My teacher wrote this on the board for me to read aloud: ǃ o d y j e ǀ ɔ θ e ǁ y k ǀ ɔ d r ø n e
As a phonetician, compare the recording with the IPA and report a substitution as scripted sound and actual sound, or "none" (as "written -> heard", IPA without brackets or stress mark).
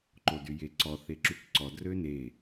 none